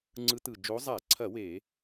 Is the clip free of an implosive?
yes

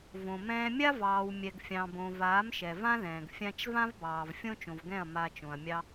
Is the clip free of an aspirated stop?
yes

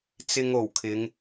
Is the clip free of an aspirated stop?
no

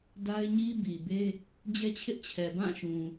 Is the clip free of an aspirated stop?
no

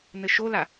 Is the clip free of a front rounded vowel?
yes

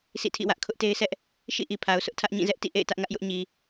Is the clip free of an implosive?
yes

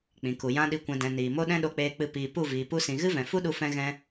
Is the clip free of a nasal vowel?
no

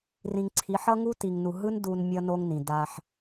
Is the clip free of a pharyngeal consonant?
no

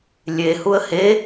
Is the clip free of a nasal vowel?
yes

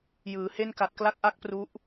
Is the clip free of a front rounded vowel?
yes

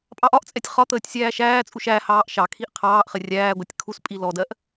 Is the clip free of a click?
yes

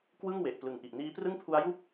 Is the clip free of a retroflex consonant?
yes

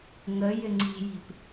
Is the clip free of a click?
no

